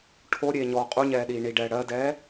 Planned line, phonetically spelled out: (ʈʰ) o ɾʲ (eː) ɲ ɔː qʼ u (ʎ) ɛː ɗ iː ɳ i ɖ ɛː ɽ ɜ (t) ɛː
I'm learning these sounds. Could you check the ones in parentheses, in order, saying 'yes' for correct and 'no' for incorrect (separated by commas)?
yes, yes, no, no